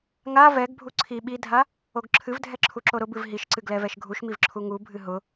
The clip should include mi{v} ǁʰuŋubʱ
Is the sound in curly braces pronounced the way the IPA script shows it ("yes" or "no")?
yes